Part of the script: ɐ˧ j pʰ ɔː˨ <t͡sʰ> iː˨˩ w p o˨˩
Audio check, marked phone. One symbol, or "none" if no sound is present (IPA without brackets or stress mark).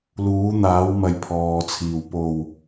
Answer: t͡sʰ